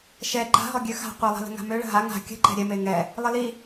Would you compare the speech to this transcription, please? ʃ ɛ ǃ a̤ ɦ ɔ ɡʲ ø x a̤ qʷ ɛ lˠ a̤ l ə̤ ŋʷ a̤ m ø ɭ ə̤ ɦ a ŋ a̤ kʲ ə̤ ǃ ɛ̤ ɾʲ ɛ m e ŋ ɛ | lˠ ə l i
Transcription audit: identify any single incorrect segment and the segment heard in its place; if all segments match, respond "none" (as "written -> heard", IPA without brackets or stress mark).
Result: ŋʷ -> ŋ